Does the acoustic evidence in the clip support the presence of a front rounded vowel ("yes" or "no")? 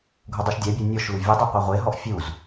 no